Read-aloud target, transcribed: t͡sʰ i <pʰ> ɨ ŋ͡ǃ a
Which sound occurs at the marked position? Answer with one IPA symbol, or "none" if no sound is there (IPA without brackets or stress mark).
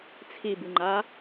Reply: b